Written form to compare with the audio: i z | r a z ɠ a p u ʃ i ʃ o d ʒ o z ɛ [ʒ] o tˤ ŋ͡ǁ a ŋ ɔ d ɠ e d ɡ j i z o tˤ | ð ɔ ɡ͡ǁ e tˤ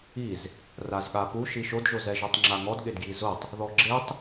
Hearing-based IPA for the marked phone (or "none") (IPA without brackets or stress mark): ʒ